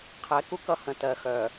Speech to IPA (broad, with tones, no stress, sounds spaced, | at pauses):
qʰ ɛ˨˦ k u˦ k ʌ˦ h ə̃˨ t ɜ˨ x œ˨